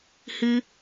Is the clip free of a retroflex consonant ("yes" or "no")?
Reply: yes